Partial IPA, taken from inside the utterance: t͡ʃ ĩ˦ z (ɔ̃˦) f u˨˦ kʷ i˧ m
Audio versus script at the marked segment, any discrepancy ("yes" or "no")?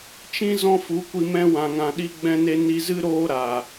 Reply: no